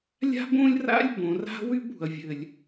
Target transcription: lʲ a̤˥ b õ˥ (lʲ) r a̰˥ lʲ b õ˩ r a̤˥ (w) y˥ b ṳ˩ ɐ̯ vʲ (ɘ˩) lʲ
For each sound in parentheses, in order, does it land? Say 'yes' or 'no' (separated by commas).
yes, yes, yes